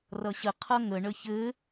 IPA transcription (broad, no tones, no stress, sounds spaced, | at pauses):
r ʌ ɕ ə qʰ ʌ ŋ ə ɳ ə ç ɘ